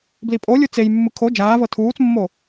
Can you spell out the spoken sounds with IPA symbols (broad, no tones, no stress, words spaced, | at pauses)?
blipʼolʲu t͡sejmːɯ kʰo d͡ʒaːvɤ tʰuːt͡smːo